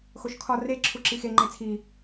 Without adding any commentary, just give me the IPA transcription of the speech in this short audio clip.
x o ʃ kʰ ɒ r e ǁʰ u ǁ i x e ŋ͡ǃ e t͡sʰ i

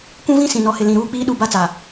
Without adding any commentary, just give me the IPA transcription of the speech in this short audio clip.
kʷ ũ˦ v ĩ˦ s ĩ˨ n ɔ˨ h ɪ˨ l ĩ˨ ɾ uː˦ k͡p iː˦ ɗ u˦˨ b a˦ t͡s a˨

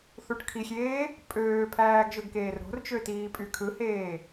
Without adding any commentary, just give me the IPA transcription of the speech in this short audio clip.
θ u ʈ kʰ i xʲ eː | pʼ øː pʰ æː ɡ ʒ ø ɡ k eː r ɾ o̤ r t͡ʃ ø t iː pʼ y kʰ ɯ h eː

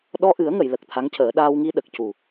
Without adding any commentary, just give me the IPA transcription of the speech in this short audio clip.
ɗ ɔ˧ ʔ ɨ˨˩˦ ə̯ ŋ ə˨˩˨ j l ə˨˩ k̚ t̪ʰ a˧˥ ŋ c əː˨˩˦ ɗ aː˧ w ŋ i˧ ɗ ə˨˩ k̚ c u˨˩

